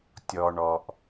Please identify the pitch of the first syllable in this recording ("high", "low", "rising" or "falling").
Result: low